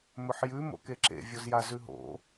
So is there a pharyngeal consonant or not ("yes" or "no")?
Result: yes